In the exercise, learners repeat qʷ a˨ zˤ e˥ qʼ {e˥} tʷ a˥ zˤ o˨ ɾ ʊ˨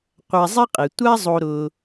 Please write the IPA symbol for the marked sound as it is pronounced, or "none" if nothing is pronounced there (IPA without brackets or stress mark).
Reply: e˩